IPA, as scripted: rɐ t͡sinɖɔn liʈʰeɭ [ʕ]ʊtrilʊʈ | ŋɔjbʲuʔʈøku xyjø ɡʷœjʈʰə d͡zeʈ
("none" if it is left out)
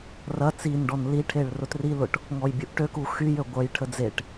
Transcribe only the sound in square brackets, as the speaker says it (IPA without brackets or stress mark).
r